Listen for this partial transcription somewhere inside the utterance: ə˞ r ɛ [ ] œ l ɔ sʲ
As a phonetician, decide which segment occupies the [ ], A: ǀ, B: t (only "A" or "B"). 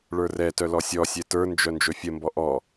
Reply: B